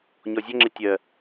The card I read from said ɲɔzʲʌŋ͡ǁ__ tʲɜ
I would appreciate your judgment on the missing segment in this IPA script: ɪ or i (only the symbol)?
ɪ